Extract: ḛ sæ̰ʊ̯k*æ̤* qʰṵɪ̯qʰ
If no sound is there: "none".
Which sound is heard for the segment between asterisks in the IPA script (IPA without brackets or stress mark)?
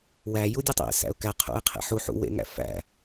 æ